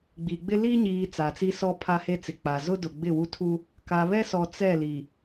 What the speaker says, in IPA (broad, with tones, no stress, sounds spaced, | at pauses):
ɡ͡b i˨ ɡ͡b ɪ˦ l i˦ ɲ iː˨ t͡s a˨ t͡s i˦ s ɔ˦ pʰ a˦ h e˦ t͡s ɪ˨ k͡p a˨ z ʊ˦ d ʊ˨ ɡ͡b ɪ˦˨ w u˦ tʰ u˦ | k a˨ β ɛ˦ s ɔ˨ t͡s ɛ˦˨ l i˨